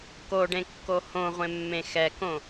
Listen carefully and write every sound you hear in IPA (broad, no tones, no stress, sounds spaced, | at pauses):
k o ɖ ẽ kː o h õ ʁʷ ẽ mː ẽ x ɛ k õ